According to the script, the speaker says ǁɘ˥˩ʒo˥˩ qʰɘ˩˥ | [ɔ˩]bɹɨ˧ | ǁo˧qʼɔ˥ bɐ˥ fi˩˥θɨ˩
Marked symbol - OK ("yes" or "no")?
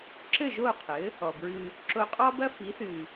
yes